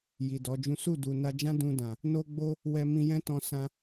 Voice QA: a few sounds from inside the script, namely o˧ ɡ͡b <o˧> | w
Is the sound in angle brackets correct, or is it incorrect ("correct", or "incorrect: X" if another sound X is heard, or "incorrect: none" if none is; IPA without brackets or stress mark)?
correct